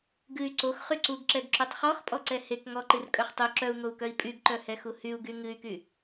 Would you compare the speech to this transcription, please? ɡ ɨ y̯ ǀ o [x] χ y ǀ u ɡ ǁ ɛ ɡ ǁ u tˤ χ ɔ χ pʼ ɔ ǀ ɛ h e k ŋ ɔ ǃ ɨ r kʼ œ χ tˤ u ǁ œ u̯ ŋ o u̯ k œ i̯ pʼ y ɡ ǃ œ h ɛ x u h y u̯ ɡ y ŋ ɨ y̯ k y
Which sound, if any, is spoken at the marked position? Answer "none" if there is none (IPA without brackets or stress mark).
x